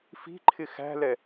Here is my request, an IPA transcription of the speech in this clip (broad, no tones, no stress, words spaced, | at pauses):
fi̤ǃʰɪ xæ̤lɛ